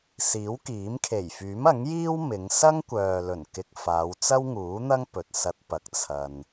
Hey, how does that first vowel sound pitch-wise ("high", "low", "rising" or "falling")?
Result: rising